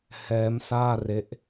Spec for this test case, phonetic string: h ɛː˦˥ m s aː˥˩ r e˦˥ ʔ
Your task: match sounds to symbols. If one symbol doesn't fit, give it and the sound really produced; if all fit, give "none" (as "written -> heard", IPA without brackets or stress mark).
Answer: none